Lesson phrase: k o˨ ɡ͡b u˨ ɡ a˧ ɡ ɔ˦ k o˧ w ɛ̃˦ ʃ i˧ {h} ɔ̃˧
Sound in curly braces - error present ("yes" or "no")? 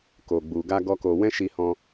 no